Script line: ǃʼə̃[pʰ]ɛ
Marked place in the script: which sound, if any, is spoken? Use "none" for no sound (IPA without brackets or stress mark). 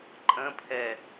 pʰ